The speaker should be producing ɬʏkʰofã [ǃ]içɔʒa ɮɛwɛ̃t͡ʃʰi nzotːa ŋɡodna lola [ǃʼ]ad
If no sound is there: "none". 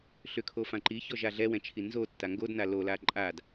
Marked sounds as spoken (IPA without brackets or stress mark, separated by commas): ǃ, ǃʼ